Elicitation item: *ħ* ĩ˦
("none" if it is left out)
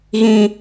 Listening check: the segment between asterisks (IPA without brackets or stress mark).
ɣ